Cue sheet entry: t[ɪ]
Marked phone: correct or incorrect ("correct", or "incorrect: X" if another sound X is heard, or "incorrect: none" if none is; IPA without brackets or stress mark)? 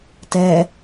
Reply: incorrect: ɛ